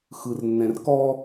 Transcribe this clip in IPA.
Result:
x ɯ r nː ɛ̃ r k ɔ

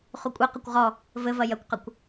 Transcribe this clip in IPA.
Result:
χ u kʷʼ ɛ q ɐ kʷ ʁ ɔ | v ɘ v ɐ j ɐ kʷ q ɐ kʷ

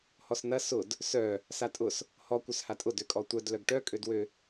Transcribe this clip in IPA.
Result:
h ɔ s n ɐ s ʊ d | s œ | s a tʼ ʊ s | h ɔ kʷ œ s h a tʼ ʊ d ø kʼ ɔ tʷ œ d l œ ɡ ʈ œ kʼ ø d w ø

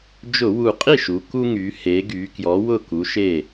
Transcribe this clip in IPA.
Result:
d͡ʒ ʊ˧˩˧ w u˨˩ qʼ i˥˩ ʃ u˩˧ k u˦ ŋ y˩˧ h e˩˧ ɡ y˩˧ k j ɔ˨˥ w ʊ˥˩ k u˨˥ ʃ e˥˩

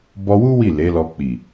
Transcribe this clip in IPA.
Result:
b ɔ˧ w u˦ w i˦˨ l e˨˦ l ɔ˧ k͡p i˨

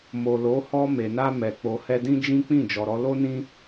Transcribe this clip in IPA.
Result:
m o˨ l o˨˦ h ɔ˧ m e˨ n a˧ m ɛ˨ k͡p o˨ h ɛ˧ d ĩ˦ d͡ʒ ĩ˦ k͡p ĩ˦˨ d͡ʒ ɔ˨ ɾ ɔ˧ l o˦ n ĩ˦

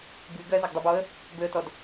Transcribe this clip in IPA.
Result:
b y ɡ ɜ z ɐ ɡ dˤ ø b ɔ ə̯ | b ø ə̯ t ɔ d

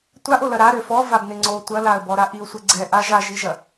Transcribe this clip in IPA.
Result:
tʷ a ʔ o l ɐ ɾ a ɾ ø f ɔ v a b n ɪ ŋ͡ǀ o tʷ ɐ l a ə̯ b ɔ ɾ a ʔ i ʊ̯ sʷ ɪ ɡ͡ǀ ɛ ʔ a ʒ a ʒ i ʒ ɐ

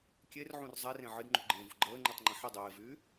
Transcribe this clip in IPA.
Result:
kʲ e r ʕ ũ r zˤ e r ẽ ʕ ɨ d ŋ͡ǃ ṳ ɡ͡ǃ ẽː v ṳ ɡ͡ǃ əː ŋ͡ǃ y tˤ ŋ͡ǃ ə̃ ħ ə dˤ eː v yː

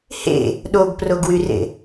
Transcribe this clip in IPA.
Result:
h ḛ | ɗ o ɡ p r o ɡ w y r ḛ

